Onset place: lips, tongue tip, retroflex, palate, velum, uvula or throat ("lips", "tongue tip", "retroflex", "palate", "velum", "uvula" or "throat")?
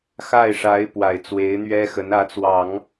velum